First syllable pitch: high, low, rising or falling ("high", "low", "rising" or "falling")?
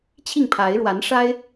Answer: falling